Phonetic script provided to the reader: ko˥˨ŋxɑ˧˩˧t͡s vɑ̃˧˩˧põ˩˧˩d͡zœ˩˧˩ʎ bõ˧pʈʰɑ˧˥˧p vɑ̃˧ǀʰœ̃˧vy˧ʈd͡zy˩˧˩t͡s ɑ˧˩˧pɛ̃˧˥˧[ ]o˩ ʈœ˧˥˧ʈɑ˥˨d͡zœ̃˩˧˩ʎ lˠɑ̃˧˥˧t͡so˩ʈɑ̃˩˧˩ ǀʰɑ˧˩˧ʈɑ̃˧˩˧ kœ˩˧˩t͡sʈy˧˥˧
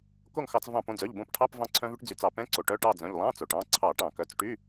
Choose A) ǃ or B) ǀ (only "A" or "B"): B